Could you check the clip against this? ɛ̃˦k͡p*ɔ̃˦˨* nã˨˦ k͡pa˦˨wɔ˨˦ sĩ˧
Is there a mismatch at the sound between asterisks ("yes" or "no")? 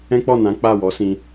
yes